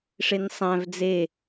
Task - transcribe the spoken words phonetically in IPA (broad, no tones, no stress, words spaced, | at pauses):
ʂensˤæ̃v d͡ze